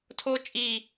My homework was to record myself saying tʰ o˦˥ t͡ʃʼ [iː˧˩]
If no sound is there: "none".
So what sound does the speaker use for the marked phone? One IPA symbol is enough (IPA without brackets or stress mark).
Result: iː˧˩